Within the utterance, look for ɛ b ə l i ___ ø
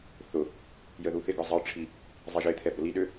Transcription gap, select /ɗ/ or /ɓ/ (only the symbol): ɗ